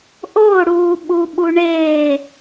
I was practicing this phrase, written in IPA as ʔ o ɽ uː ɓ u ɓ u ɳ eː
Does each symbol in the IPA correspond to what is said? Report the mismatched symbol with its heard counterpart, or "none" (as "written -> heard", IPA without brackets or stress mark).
none